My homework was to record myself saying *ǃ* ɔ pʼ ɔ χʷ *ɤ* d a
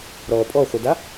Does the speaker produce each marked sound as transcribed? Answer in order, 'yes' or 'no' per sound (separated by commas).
no, yes